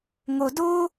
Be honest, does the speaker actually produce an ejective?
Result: no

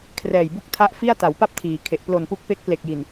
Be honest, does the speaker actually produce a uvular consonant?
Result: no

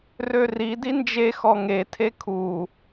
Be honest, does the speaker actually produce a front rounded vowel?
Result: yes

